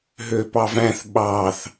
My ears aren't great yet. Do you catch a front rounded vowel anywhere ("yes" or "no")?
yes